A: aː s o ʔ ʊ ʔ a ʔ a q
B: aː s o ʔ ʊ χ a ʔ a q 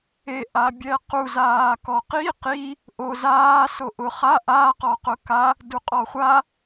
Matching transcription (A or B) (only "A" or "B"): B